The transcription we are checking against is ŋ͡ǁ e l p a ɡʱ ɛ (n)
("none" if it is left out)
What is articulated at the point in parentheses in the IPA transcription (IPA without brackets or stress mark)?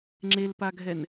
n